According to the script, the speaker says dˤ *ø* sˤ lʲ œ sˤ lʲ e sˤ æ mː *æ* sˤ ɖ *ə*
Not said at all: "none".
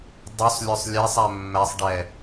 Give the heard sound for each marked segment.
ø, æ, ɛ

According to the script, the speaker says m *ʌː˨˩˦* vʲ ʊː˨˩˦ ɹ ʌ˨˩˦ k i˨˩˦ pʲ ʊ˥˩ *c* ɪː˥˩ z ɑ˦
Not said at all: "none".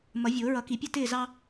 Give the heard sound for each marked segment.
ʌ˨˩˦, t

